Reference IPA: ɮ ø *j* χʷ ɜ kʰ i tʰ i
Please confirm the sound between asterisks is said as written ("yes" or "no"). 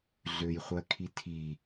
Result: yes